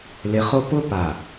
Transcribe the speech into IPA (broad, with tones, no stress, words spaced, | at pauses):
lɪ˨χo˦ pʊ˦ pa˨